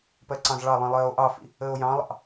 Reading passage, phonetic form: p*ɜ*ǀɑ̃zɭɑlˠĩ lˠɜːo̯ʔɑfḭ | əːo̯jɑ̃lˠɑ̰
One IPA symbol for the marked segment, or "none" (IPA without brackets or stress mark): ɜ